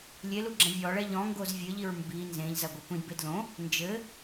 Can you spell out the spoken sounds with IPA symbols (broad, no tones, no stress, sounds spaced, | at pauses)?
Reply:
lʲ e l u ɡ͡ǁ ɐ̃ vʲ ɔ ɭ ɛ ʎ ɔ̃ ŋ ɡ o z vʲ ɘ ʎ i ɹ m b i n z ẽ ʎ z ɐ ɡʷ ɐ kʷ ĩ d b e d l õ | n d͡ʒ ɘ